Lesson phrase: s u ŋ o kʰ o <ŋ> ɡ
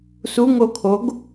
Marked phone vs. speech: incorrect: none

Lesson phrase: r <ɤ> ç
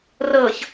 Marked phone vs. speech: correct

